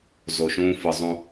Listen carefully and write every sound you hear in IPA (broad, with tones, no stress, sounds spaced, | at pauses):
z o˨ ʃ ũː˦ f ɯ˨ zˤ ũ˨